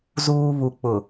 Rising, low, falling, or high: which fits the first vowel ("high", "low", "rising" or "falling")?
high